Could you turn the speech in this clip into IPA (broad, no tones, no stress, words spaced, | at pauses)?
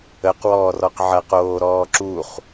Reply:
əq wɔːrɔqʕɐq oːɾɔːǁuχ